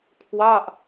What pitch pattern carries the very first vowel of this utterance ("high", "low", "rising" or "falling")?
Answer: falling